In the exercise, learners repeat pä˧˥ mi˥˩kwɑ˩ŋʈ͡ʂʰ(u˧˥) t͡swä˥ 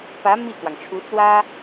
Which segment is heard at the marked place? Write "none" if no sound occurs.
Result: u˧˥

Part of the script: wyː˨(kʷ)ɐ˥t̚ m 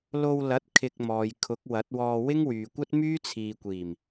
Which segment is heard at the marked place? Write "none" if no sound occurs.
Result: kʷ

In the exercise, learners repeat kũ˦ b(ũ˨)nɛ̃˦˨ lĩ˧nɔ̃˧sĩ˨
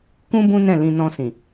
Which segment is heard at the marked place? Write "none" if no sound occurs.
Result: ũ˦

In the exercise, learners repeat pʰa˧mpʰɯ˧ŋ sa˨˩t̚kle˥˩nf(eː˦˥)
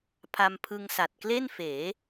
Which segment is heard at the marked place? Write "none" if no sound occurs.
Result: eː˩˦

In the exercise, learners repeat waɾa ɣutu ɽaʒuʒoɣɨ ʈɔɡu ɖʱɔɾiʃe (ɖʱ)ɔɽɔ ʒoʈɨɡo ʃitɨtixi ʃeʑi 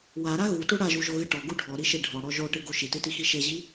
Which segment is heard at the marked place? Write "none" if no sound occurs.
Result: ɖʱ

